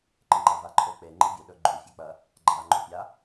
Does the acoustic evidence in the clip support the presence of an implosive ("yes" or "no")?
yes